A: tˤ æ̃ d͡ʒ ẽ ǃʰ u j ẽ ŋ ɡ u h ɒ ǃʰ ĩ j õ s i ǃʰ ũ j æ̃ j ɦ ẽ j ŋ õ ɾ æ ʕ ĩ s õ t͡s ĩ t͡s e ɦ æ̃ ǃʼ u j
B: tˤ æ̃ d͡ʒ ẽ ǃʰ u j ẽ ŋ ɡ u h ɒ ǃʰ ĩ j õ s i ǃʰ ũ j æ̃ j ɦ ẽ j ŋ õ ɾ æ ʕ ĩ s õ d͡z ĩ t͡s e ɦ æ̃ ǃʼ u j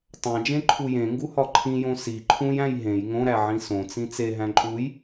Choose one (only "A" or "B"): A